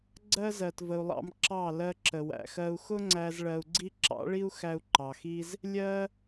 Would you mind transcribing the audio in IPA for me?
ɡ͡ǀɜ˦zɜ˨tvə˨u̯lˠɑ̰˧m ǁɑ˦˨ lɜ˧ǁə˨wæ̰˨ xɜ˦u̯ xʊ˦ŋ͡ǀæ˧z ɭɜ˧u̯ɡ͡ǀi˦ ǁɑ̰˨˦ɭi˦u̯xæ˧u̯ ǃɑ˨xi˦z | lʲɜ˦

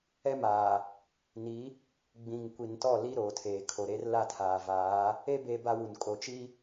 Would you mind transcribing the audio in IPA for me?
ɛ˦maː˨ | ni˨˦ | ɡ͡bĩ˨ŋkʷi˨ntɔ˦˨ li˦ɾoː˨tʰeː˨ kʰo˨ɾe˦r la˦˨tʰaː˨vaː˨˦ | e˦ be˦ba˦wu˨n kʼo˨t͡ʃi˦

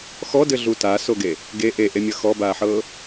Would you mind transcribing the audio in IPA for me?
xɔdɘɮu tasoɡe | ɡe ʔeʔemʲʌ xɔbaːħɤː

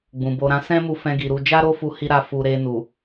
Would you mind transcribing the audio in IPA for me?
ɡ͡bũ˨bo˧ ɾã˧sɛ̃˦mu˧ fɛ̃˦ɡi˧ ɾu˧ d͡ʒa˦ɾo˦fu˧ hi˦ɾa˦˨fu˧ ɾe˧nu˨

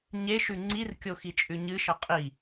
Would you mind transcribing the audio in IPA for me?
ɲeʃʉ ŋ͡ǀirkʲoxit͡ʃʼʉ ɲɨʃʌ qʼi

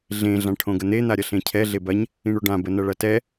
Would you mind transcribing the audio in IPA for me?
ɮẽ ɮãʈʰõɡən̪e n̪aɾʲɐɬẽcʰɛ ɮebɐɲ | ĩɳoɖã bənɐɭɐtɛ

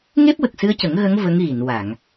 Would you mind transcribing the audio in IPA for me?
ŋe˦˥p̚wə˨˩k̚sɨ˧ə̯cə˨˩˦ŋ ɣə˧˥ŋ və˧˥ŋɣi˨˩˨n wa˨˩˨ŋ

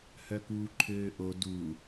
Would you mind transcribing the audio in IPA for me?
hœkuːǃʰøːʔo du

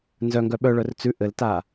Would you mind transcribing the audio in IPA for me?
nzœŋɡœ ɓœɭœr t͡sʉ ʔɘlta

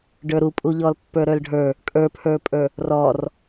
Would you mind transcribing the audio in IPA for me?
ɖə˞ɾupʼuʎɔl pːə˞ɾə˞lɖʱə˞ | kʼə˞pʰə˞pʼə˞ | rɔr

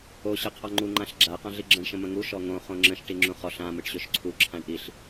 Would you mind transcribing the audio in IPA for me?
o ɕɯqʰɔŋ͡ǃu ŋ͡ǃãɬɡ͡ǁa qãɮiɡ͡ǁə̃ɳ ʃə̃mə̃ŋu ʃɔŋõ χõŋ͡ǁə̃ʃ ʈiŋ͡ǁũχɔɬ ã mɯʈɕøʃǀʰu ǁʰãɳʔiɬ

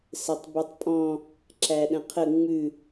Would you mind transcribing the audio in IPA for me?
sɘtˤbʉtˤpʼɔ̃ | ǁæɗə̃qʰə ŋ͡mʉ

